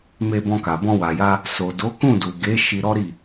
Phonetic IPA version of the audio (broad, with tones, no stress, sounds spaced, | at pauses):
m e˧ b ɔ̃˧ k a˨ b ɔ̃˧ w a˨ j a˧ | s o˨ d o˨˦ k ũ˦˨ d u˨ ɡ e˨˦ ʃ i˧ ɾ ɔ˦ ɾ i˦˨